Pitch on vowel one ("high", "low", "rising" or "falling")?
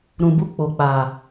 low